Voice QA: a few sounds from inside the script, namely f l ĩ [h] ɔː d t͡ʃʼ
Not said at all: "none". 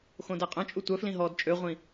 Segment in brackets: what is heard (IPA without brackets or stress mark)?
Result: ɦ